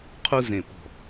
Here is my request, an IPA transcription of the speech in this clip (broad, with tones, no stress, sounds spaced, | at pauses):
qʰ u˧ z ẽ˨˩ p ɔ̤˨˩